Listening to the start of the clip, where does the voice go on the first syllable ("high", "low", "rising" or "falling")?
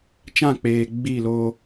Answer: falling